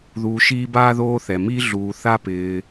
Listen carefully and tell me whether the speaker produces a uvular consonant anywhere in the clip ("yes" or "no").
no